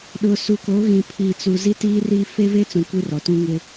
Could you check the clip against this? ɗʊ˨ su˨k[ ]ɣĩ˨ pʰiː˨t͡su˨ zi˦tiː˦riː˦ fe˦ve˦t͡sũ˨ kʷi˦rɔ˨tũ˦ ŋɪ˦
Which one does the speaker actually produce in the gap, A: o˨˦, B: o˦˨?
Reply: A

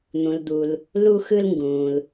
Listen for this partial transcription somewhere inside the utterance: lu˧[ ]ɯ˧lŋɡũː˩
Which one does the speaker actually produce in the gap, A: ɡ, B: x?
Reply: B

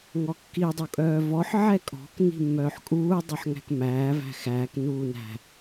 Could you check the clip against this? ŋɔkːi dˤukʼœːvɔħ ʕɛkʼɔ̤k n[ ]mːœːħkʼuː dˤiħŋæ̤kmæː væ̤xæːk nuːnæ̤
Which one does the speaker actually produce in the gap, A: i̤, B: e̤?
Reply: A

